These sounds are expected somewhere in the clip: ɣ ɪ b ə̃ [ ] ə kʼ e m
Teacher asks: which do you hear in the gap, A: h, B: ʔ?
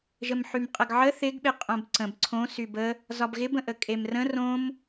B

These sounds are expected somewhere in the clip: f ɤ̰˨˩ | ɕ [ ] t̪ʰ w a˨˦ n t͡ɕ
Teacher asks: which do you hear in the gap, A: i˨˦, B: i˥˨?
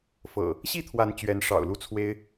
B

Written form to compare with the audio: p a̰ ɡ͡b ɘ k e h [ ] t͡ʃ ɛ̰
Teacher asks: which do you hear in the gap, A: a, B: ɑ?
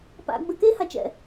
A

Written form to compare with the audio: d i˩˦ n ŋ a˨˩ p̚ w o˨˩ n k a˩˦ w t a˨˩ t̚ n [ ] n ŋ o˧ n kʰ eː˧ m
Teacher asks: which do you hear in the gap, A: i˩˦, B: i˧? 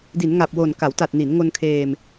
A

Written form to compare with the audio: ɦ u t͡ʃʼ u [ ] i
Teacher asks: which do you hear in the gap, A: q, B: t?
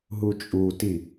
B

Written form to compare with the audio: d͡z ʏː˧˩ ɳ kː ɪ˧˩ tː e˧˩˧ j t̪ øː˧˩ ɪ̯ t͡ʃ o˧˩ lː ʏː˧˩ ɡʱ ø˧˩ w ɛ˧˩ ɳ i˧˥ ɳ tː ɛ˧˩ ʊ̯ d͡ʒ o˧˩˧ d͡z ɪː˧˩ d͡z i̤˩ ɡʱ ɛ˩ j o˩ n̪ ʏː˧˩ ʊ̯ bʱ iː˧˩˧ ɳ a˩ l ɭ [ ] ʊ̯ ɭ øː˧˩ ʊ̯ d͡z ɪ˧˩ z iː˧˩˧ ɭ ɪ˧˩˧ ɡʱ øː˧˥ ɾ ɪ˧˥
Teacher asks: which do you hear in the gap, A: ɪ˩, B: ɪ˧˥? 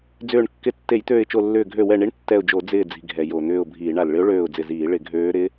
B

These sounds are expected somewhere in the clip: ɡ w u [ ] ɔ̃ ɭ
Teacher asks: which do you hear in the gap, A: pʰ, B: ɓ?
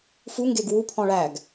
A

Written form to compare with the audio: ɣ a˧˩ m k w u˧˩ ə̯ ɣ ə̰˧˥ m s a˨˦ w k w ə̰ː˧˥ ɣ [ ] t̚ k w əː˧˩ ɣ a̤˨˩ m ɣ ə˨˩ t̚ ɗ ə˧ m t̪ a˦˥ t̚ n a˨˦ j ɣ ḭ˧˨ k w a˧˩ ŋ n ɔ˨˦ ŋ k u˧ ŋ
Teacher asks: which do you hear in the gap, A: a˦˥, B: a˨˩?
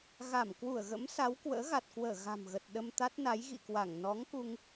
B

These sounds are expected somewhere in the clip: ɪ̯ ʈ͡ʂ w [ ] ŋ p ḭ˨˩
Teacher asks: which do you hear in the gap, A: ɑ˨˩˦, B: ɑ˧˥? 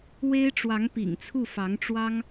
B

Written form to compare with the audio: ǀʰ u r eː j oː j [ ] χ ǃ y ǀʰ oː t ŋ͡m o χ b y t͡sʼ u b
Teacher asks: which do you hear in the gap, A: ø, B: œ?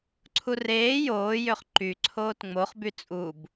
A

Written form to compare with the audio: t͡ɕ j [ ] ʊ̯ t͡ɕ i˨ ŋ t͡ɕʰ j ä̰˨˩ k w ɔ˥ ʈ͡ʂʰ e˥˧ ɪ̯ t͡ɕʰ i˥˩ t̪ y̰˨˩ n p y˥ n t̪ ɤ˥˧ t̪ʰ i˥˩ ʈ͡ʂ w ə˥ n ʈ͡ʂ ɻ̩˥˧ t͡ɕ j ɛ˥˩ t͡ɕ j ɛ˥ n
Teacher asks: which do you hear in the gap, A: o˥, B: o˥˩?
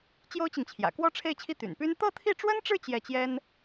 A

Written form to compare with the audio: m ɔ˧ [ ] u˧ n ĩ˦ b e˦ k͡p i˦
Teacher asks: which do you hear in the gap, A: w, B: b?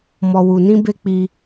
A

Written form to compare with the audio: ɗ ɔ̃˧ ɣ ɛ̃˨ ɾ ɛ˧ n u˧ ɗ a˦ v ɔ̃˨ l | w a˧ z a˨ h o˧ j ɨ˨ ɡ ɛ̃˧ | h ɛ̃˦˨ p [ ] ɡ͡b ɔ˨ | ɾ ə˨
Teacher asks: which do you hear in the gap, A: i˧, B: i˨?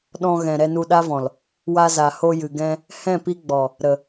A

